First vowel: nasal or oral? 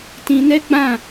nasal